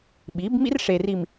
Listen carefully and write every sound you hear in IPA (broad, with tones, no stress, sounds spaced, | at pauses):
ɓ i˨˦ b m ḭ˦ r ʂ e˨ r i˨ m